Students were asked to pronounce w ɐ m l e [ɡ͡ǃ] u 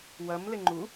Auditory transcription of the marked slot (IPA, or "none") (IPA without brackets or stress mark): ŋ͡ǃ